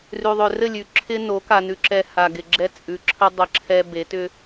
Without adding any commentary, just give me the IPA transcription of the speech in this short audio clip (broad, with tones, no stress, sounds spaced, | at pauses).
r ʉ˨ ðˤ ʏ˨ r ɘ˦˨ lʲ ʉ˨ ǁʰ ɪ˦ n o˨˦ k a˨ n ʉ˨ ǁ ɛ˨ h a˨ ɡ ɪ˨ ɡ͡ǁ ɛ˦ t͡sʼ ʉ˨ ǁʰ ə˦ dˤ ə˨ ǁʰ ɛ˨ b e˨˦ t ʏ˦